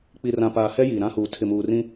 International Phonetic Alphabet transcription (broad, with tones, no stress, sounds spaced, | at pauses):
k͡p i˨ r ã˨ p aː˨ h ɛ˦ j iː˨ ɾ ã˦ h uː˨ tʰ ɪ˨ m uː˨ r ĩ˦